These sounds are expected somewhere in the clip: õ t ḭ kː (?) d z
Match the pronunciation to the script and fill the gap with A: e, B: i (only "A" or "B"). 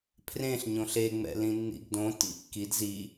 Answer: B